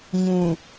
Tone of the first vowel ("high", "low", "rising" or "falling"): low